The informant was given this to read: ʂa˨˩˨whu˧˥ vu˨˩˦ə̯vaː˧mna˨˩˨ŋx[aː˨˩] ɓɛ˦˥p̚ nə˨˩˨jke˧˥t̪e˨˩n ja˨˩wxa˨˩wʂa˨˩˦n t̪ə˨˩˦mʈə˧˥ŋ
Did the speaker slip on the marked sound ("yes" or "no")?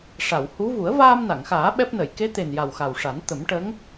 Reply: yes